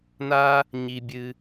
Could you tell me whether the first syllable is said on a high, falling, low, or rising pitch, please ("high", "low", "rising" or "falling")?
high